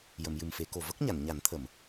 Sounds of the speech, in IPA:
j ə˨˩˨ m j ɨ˨˩ m f e˨˩˦ k o˨˩ v ə˦˥ k̚ ɲ a˨˩˨ n ɲ a˨˩˦ n t̪ʰ ə˨˩˨ m

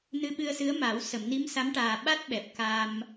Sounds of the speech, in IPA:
n ɨ˧ ɓ ɨ˧ ə̯ s ɨ˧˥ ə̯ m a˨˩˦ w s ə˨˩˨ m n i˧˥ m s a˧˥ m ʈ aː˨˩ ɓ a˦˥ t̚ ɓ ɛ˨˩ p̚ k a˧ m

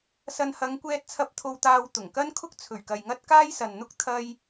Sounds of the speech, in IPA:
s ɐ˨ n h ɐ˨˧ ŋ kʷ ɛː˧ t̚ t͡sʰ ɐ˧ p̚ t̪ʰ o˧ w t̪ aː˧ w t̪ ʊ˨˩ ŋ k ɐ˥ n kʰ ʊ˥ k̚ t͡sʰ ɵ˨˩ ɥ k ɐ˨ j ŋ ɐ˥ t̚ k aː˥ j s ɐ˨ n n̪ ʊ˥ k̚ t̪ʰ ɐ˥ j

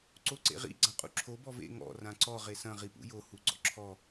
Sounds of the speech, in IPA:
ǀ o ǀ ḛ ʁ ḭ ɡ͡ǀ ã qʼ ṵ ǁʰ o b ɔ v ḛ ŋ ɔ̰ r ã ǀ ɔ ʁ e s ɐ̃ ʁ i p ṵ j o h u ɡ͡ǀ ɔ̰ ǁʰ ɔ

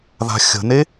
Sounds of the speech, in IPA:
ð a̤ xʲ ə̤ n e

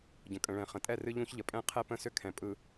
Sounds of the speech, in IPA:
ɟ ə̃˨ kʼ ə̃˨ ɭ ɛ̃˨ χ ə̃˨ tʼ ɛ˦˨ r ɨ˦ ʎ ũ˦ ç ʎ ə˨ pʼ ɛ̃˦ qʰ ɛ˦ p ə̃˦˨ s ʏ˦ kʰ ɛ̃˨ pʼ ɯ˨

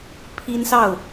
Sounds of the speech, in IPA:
pʰ i˦ n s ɑ˥˨ ʊ̯

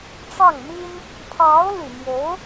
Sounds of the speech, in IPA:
ʈ͡ʂ ɑ˥˩ ŋ m i˥ n | pʰ ɑ˧˥ ʊ̯ l y˨˩ m j o˧˥ ʊ̯

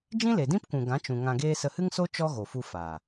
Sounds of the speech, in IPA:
d͡ʒ ĩ˦ l e˨ d ĩ˦ p kʷ ũ˨ ɡ ã˨˦ t͡ʃ ũ˨ ŋ ã˧ ɡ eː˦ s ə˧ h ɨ˦ ŋ s o˦ t͡ʃ ɔ˦ ɣ o˨ f u˧ f a˨

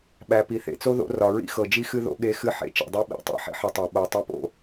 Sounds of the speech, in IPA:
ɓ æ˨ p i˨ θ ḛ˨ t͡s o˦ ð o̰˨˦ r ɒ˨ ɹ ḭ˦ x ɤ˨ d͡ʒ i˦ x ɨ˦ ð o̰˦ ɠ e˦ x ɨ˦ ħ ḛ˨ t͡ʃ ḛ˨ dˤ e˦ ɓ ḭ˨˦ tˤ ḛ˨ ħ ḭ˦ ħ ɨ˨ tˤ æ˨ ɓ o˨ tˤ e˦ p o̰˦

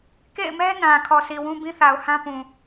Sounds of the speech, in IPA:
k ḛ˦˨ ɪ̯ m ɛ˦ n ã˨ kʰ ɔ˨ sʰ i˨ w ũ˦ b ĩ˦ θ a˨ ʊ̯ h ã˦ p ũ˨

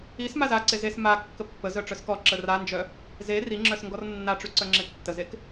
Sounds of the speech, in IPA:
i s m a z a ǀ e z e s m a kː ə pː ə z œ ʈ͡ʂ œ s k ɔ ǁ ə r a n d͡ʒ œ | z e r i ŋ͡ǁ œ s ŋ ɡ ɔ r nː a ʈ͡ʂ y ǀ œ ŋ͡ǁ e tː ə z e k

